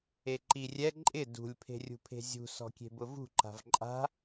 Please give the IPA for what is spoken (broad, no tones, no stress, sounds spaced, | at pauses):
e ǃ i rʲ ɛ ǃʼ ɪ d ṳ lʲ pʰ e̤ rʲ ṳ pʰ e̤ zʲ ṳ s ɔ̤ kʲ e̤ b ʊ v ṳ ǃ a̤ v ǃʼ a̤